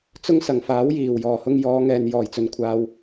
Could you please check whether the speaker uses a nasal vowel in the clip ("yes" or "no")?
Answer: no